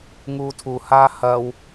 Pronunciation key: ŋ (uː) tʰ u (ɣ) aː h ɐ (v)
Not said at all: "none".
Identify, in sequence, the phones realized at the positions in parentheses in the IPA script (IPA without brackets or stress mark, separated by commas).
uː, h, w